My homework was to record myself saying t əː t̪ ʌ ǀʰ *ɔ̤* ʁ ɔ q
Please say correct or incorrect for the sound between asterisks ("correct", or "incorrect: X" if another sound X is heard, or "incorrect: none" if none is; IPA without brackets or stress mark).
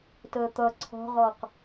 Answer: correct